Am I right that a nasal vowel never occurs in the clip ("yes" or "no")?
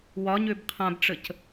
no